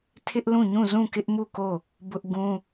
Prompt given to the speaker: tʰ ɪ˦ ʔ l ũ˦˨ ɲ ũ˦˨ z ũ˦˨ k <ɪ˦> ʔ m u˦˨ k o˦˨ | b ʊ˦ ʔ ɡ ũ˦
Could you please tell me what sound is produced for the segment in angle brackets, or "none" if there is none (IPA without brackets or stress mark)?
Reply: ɪ˦